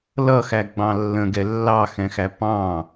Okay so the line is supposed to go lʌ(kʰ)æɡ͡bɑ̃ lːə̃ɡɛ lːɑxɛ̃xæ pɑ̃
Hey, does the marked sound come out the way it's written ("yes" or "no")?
no